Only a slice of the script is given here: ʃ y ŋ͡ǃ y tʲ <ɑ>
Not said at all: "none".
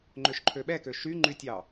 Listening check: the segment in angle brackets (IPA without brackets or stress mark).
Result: ɑ